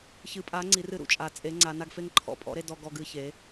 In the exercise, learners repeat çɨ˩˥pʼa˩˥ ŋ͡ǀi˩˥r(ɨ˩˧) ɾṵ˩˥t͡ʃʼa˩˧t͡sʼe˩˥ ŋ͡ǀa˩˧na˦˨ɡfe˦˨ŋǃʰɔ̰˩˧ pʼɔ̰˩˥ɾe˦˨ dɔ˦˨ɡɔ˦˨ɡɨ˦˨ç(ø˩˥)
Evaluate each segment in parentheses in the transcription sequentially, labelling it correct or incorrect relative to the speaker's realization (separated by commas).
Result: incorrect, incorrect